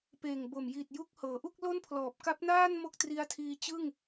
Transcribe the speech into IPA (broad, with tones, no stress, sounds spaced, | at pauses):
p eː˨˩ ŋ b o˨˩ m j i˨˩ t̚ j u˦˥ k̚ h ɤː˩˦ ʔ u˥˩ k̚ l o˥˩ n pʰ l ɔː˨˩ p̚ k a˦˥ p̚ n aː˥˩ n m o˥˩ k̚ t r i˦˥ a̯ tʰ iː˧ t͡ɕ ɯ˥˩ ŋ